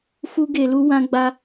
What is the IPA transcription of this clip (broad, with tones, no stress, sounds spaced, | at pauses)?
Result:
f u˦ ɡ e˧ l u˦ w ã˦ ɡ͡b a˦